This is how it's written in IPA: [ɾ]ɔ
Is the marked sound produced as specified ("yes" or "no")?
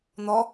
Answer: no